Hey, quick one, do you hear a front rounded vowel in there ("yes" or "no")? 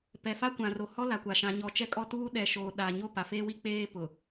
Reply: no